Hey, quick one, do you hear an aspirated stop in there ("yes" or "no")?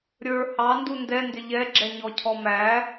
yes